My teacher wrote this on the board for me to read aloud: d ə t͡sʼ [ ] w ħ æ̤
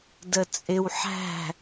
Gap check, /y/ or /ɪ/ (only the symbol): ɪ